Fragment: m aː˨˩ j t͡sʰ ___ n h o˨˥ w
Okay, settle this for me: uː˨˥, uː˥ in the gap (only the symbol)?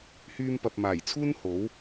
uː˥